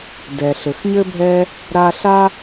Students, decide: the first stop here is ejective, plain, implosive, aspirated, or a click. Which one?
plain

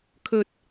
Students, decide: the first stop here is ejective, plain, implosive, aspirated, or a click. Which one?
aspirated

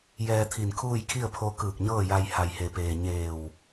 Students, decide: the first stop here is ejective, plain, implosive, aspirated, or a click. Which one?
aspirated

